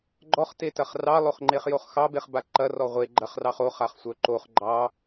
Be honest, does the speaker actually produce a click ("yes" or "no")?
yes